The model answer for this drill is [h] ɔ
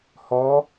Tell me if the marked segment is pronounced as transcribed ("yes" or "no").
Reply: yes